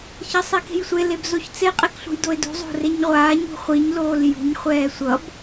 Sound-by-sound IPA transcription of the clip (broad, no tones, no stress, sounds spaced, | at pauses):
ç ʌ sˤ e k e̤ j sʷ e l e b z o ç t͡s e qʼ e k ɬ ṳ j d o ɪ̯ d ṳ zˤ o̤ r e ɲ ʁʷ aː ɲ ṳ χʷ i ɲ l oː l j ṳ ɲ χʷ ɛː sʷ ʌ b